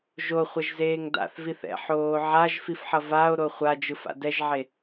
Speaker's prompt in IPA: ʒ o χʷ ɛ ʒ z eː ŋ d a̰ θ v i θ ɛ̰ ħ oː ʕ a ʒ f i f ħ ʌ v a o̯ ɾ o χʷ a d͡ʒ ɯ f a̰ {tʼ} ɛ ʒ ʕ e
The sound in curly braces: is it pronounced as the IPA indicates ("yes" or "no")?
no